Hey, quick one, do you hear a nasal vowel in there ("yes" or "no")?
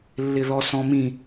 yes